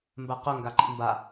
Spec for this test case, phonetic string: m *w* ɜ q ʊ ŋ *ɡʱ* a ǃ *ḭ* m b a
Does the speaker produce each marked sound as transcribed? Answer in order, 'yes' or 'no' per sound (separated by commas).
no, no, yes